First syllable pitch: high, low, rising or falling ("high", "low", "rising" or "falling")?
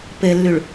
low